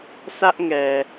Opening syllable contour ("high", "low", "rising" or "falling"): high